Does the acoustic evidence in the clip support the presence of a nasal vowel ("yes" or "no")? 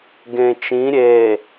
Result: yes